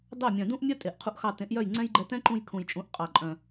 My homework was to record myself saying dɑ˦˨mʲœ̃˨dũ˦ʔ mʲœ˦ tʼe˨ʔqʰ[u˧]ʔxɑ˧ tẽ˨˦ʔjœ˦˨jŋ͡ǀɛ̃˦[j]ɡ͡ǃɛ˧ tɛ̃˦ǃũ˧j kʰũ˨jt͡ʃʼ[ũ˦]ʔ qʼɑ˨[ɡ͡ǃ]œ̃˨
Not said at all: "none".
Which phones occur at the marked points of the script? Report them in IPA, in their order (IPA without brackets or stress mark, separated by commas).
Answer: u˧, j, ũ˨˦, ǃʼ